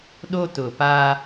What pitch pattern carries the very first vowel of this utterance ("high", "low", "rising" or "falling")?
high